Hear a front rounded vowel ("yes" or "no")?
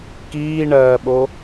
no